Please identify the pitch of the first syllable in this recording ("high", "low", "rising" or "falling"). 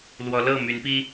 rising